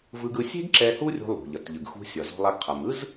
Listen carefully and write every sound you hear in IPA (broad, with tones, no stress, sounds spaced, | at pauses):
v ɯ˧ ɡ ɯ˧ sʲ e̤˥ ɡ ǁ ɛ˧ h u˥ rʲ ṳ˧ lˠ ṳ˩ ʎ ʌ˩ t ʎ ɯ˩ ɡ x ṳ˧ sʲ ʌ˩ z o̤˧ lˠ a˧ ɡ qʰ a˩ m ɯ˥ z